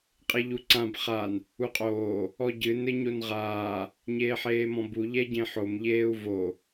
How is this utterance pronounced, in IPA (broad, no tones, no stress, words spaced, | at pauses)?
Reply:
qʼeʎuǀãb χan | uqʼoː | ɔɟɨ nɘɲonʁaː | ɲeːħeːmɔ̃bu ʎɛɟẽħom ʎeːu̯vo